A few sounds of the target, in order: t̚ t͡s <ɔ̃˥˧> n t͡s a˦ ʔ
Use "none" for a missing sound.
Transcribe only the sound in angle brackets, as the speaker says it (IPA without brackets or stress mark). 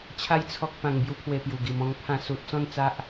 ɔ̃˥˧